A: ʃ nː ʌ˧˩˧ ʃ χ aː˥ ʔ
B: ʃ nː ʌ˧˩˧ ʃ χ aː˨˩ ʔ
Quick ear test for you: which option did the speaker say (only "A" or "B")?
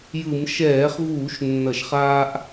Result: A